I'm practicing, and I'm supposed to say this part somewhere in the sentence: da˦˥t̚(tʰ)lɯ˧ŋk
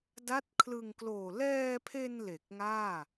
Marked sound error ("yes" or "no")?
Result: yes